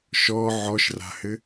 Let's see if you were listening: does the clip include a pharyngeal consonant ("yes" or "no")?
yes